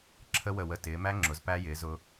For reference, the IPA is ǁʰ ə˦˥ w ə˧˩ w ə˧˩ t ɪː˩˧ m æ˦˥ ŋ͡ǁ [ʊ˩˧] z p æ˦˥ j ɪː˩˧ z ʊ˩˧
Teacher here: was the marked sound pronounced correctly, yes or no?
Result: yes